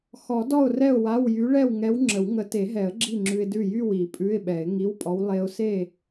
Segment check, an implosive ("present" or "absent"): present